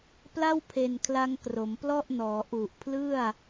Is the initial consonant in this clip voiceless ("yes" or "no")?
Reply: yes